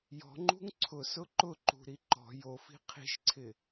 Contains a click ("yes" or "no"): yes